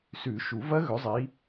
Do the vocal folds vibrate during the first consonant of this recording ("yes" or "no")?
no